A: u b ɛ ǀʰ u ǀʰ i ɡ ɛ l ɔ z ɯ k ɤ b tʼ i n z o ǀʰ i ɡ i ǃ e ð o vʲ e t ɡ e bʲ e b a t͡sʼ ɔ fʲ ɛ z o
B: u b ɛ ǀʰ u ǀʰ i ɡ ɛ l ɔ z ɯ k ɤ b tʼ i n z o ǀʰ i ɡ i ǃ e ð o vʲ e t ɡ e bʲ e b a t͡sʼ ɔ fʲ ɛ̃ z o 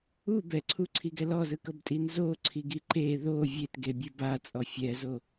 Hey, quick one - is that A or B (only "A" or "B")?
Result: A